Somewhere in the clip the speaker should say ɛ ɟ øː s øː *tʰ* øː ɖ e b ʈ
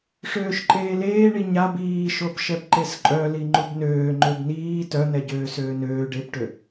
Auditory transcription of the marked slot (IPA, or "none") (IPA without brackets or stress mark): n